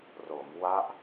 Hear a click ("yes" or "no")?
no